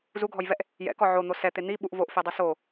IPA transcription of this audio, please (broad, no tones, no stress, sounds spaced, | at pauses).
z u ɡʱ ɔ j v ɛ ʔ | j ɛ̰ k ɔ ʕ o n̪ o s ɛ t̪ e n̪ i ɓ u ʔ v o ʔ f e dˤ e s o